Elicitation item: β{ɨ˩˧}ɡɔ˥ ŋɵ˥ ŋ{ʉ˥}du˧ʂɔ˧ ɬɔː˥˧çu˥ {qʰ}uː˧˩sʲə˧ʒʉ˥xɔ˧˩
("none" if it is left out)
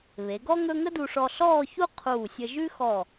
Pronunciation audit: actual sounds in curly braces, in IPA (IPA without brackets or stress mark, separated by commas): e˩˧, ə˥, qʰ